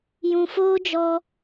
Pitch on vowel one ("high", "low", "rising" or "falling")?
low